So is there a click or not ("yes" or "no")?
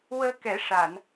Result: no